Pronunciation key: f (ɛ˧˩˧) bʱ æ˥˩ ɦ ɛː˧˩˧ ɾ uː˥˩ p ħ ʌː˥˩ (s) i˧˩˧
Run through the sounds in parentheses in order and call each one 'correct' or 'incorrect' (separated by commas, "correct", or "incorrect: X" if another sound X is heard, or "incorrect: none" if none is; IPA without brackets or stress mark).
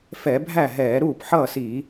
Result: correct, correct